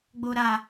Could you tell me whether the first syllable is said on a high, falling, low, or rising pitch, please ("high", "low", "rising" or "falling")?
low